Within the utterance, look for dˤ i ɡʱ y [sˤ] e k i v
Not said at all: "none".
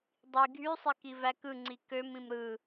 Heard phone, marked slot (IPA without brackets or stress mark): sˤ